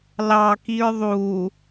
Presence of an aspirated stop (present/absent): absent